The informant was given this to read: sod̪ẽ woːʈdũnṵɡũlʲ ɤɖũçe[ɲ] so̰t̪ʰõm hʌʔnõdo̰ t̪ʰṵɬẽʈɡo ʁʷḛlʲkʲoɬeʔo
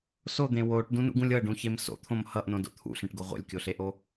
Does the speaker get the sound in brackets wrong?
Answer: yes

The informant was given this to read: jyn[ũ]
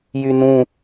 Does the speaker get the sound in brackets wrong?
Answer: no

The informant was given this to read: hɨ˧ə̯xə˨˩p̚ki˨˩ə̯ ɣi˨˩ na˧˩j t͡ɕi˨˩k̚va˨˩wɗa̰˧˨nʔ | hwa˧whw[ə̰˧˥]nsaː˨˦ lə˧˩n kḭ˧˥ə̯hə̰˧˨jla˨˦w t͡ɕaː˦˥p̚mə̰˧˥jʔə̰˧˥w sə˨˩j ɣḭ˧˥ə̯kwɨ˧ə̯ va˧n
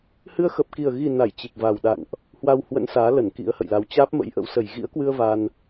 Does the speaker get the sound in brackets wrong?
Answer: no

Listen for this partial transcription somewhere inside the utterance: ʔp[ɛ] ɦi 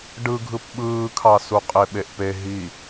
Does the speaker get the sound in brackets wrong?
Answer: yes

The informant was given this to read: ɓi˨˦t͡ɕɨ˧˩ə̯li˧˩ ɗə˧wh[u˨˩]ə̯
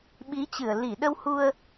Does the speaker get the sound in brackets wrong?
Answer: yes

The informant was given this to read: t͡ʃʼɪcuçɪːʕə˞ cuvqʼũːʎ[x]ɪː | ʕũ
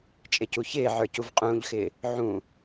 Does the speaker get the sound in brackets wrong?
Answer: no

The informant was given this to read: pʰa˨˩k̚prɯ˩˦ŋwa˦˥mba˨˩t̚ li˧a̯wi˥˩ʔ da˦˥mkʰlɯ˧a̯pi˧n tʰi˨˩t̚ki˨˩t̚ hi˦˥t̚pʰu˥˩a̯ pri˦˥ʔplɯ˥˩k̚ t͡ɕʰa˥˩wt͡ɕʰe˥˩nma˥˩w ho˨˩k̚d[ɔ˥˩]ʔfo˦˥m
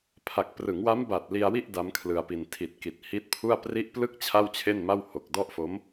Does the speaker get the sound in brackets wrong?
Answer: no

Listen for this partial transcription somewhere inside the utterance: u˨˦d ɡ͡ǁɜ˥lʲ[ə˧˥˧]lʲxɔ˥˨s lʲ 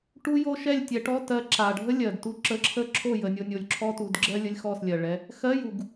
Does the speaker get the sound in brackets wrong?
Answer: no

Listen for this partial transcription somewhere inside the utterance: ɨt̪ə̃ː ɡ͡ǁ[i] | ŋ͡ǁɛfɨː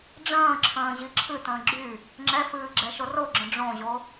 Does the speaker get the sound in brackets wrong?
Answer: yes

